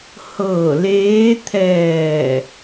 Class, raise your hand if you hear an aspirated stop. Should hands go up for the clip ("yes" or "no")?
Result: yes